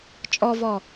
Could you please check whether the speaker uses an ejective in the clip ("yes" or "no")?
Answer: yes